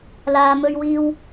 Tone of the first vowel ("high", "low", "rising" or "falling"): high